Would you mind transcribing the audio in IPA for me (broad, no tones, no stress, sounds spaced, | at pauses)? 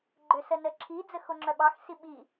ɡ͡ǃ ø s ə n ə ǁʰ i d͡z ə x o ŋ͡ǁ œ ɓ ɑ x s i ɓ i